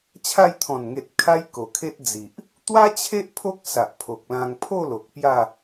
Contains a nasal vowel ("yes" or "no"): yes